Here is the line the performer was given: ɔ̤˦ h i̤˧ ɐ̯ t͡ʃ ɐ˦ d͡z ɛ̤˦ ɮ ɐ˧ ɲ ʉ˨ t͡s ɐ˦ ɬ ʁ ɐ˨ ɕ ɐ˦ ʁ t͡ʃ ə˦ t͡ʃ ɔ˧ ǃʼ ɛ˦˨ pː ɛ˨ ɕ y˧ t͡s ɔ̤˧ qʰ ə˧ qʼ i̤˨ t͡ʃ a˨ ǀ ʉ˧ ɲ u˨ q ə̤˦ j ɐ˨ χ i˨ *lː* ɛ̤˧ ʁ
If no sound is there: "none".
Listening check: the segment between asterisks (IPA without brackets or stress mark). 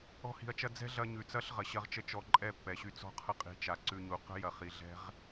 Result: ɮ